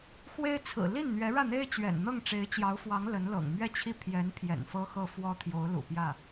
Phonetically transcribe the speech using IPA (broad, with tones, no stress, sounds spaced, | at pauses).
x w e˥ ɪ̯ t͡sʰ ɹ̩˨˩ l i˥˩ n n̪ ɥ ɛ˧˥ ɻ ä˥˩ n̪ e˥ ɪ̯ t͡ɕ ɥ ɛ̰˨˩ n n̪ ɤ˥˩ ŋ ʈ͡ʂ e˧˥ ɪ̯ t͡ɕ j ɑ˧˥ ʊ̯ f w ɑ˧˥ ŋ l ə˧˥ n l ɤ̰˨˩ ŋ m ɥ ɛ˥˧ t͡ɕʰ i˥˩ pʰ j ɛ˧˥ n pʰ j ɛ̰˨˩ n f ɤ˥ x ɤ˥˩ f w ɔ˥ t̪ʰ j o˧˥ ʊ̯ l ṵ˨˩ p j ä˥˩